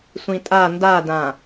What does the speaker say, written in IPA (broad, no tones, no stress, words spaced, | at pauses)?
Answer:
sʷĩtʼa ndadã